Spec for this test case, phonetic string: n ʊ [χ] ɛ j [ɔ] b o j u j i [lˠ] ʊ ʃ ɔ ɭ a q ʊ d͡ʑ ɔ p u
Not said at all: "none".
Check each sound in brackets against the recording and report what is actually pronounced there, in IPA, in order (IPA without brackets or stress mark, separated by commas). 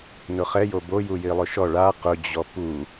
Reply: χ, o, lˠ